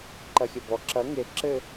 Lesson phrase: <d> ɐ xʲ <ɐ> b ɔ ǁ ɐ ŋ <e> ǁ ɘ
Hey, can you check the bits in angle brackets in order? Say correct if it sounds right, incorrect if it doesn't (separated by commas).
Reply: incorrect, correct, correct